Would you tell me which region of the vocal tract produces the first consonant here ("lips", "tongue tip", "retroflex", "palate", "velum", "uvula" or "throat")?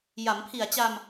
palate